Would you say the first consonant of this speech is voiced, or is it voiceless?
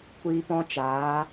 voiceless